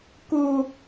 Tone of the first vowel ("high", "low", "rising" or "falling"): high